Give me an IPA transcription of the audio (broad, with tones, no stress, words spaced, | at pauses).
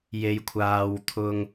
je˧jkʷʰaː˧w t̪ʰʊ˥ŋ